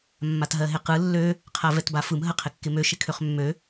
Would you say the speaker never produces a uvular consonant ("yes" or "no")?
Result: no